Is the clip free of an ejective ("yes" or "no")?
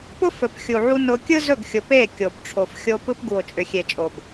no